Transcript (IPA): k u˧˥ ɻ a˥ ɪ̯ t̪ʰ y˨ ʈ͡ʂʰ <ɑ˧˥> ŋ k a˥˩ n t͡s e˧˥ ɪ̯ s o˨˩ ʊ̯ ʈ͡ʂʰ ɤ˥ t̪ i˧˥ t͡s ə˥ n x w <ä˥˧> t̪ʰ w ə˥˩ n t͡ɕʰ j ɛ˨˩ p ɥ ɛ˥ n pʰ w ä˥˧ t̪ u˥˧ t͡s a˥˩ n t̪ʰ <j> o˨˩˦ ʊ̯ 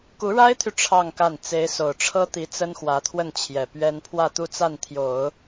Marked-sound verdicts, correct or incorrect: incorrect, incorrect, correct

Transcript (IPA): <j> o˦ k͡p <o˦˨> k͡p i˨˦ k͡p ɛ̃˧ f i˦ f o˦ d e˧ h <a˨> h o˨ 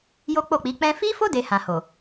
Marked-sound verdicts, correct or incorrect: correct, correct, incorrect

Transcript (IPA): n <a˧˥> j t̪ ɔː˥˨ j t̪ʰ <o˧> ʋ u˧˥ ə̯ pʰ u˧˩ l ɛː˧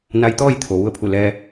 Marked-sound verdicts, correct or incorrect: correct, incorrect

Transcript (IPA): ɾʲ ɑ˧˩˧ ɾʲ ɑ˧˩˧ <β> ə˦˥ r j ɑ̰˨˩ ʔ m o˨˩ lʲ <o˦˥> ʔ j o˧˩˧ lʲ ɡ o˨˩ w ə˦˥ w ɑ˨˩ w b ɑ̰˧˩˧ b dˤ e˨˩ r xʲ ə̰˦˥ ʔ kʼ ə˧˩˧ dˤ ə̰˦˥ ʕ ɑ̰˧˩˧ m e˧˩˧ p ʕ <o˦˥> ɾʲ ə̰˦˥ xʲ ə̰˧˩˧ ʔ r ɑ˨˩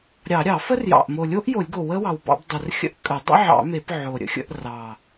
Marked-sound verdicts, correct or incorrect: incorrect, correct, incorrect

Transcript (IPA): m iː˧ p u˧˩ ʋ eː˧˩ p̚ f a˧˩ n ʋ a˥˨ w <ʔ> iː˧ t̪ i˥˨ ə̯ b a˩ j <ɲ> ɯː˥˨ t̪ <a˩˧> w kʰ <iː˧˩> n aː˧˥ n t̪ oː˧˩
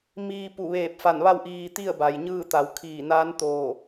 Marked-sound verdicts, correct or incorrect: correct, correct, correct, correct

